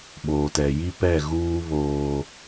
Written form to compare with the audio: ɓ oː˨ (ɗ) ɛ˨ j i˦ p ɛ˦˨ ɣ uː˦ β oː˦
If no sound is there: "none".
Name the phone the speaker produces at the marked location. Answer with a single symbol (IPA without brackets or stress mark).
t